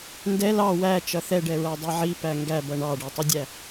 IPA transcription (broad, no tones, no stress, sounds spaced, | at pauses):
n d ɛ l ɑ w æ t͡ʃ ʌ θ ɛ ɖ ɛ ɹ æ dˤ i ʕ i p æ ŋ ɡ æ b ʌ ɳ ɑ ɖ ɛ tˤ ʌ dʲ æ